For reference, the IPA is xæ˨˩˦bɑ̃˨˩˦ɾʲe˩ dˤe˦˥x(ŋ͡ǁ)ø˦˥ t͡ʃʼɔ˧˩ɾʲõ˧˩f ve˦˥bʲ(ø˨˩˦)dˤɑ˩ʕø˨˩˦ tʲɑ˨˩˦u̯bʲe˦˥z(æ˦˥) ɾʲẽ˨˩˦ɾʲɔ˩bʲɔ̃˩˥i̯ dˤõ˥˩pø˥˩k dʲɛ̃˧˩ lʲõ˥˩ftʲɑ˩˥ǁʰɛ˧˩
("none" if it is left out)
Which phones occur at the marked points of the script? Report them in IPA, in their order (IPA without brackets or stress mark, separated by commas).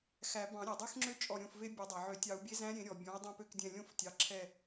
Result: ŋ͡ǁ, ø˨˩˦, æ̃˦˥